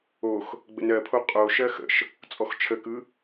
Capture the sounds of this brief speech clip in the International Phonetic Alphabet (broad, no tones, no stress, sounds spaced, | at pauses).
o x | ɡ͡b ə̰ n ɜ pʰ o qʼ o ʃ ɜ x ə̰ ʃ | t͡sʼ ɔ x t͡ʃʰ ə k ɯ